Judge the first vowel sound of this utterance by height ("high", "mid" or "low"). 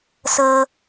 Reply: mid